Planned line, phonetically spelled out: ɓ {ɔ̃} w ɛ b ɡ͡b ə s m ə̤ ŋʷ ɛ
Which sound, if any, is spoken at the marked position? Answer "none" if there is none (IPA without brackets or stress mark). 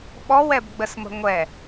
ɔ